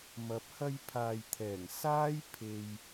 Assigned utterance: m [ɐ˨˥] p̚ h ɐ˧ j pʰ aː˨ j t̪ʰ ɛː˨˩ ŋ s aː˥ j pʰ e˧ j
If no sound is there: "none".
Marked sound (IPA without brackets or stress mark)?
ɐ˨˥